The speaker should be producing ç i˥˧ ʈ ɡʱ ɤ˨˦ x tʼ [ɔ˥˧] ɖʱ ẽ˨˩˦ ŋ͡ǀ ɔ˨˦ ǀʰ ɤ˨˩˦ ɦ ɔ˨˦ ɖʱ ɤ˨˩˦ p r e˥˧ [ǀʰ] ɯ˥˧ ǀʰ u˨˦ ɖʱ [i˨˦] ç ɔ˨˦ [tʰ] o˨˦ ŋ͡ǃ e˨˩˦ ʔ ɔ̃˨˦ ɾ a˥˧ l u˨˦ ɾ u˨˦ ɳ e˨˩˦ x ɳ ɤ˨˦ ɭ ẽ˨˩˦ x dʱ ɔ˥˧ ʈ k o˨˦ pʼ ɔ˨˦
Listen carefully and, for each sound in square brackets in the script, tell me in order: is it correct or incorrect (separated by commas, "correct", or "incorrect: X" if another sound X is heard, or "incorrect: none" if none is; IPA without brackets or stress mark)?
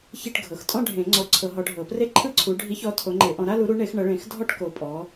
incorrect: ɔ̃˥˧, incorrect: ǃʰ, correct, correct